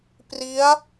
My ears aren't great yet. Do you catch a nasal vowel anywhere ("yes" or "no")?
no